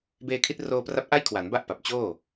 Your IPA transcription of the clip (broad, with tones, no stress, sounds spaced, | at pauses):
b eː˧ kʰ i˦˥ t̚ r oː˧ p r a˦˥ p̚ ʔ a˥˩ j kʰ w a˩˦ n b a˥˩ ʔ p a˨˩ p̚ t͡ɕ oː˥˩